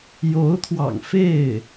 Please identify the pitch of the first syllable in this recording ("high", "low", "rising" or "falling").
rising